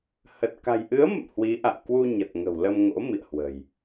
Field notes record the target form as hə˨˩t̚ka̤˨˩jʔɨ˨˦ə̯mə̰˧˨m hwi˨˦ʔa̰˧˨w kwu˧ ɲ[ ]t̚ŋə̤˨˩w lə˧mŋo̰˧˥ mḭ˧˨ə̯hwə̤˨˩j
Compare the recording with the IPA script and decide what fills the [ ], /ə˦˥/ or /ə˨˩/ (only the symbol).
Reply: ə˨˩